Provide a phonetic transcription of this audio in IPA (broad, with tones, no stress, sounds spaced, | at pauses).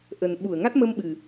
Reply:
ʔ ə˨˩ n ɓ u˧˩ ə̯ ŋ a˦˥ t̚ m ə˧ m ɓ ɨ˨˩